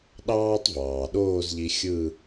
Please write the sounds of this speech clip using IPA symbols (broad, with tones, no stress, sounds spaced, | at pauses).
ɗ ɑː˥ tˤ v ɑː˩ ɗ oː˥˧ z ʎ i˧ xʲ ɯ˥˧